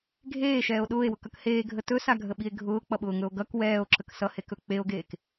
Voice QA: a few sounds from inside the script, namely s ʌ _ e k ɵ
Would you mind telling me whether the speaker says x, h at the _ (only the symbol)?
h